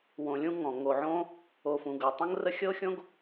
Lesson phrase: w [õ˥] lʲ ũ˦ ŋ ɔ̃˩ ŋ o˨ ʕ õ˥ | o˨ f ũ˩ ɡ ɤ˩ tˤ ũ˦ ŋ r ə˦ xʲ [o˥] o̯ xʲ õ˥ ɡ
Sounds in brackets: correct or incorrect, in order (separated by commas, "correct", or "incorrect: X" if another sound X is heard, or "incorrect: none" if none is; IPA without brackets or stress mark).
incorrect: õ˨, incorrect: ɤ˥